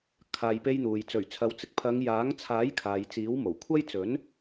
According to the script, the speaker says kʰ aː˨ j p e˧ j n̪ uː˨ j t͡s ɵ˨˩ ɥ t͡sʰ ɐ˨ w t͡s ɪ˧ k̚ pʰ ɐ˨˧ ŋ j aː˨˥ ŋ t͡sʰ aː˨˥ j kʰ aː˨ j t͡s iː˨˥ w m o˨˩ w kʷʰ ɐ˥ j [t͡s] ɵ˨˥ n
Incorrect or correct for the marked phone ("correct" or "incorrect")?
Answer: correct